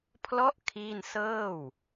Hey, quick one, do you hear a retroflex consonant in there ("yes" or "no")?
no